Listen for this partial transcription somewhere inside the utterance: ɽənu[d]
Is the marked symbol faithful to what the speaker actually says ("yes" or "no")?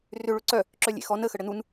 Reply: no